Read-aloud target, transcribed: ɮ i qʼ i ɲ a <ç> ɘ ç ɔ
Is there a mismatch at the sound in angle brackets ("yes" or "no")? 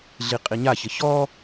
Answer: no